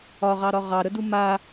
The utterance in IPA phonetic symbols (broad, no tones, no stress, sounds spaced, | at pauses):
ɒ ʁ ɑ ɾ ɒ ʁ ɑ ɾ ə d u m a